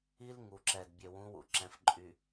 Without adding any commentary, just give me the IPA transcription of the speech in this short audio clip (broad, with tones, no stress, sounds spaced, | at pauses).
i˦ l ŋ u˨ ǁ ɛ˨ d bʲ ø˨ w ũ˨˦ w ṵ˨ ǁ ɛ̃˨ f ǃʼ y˨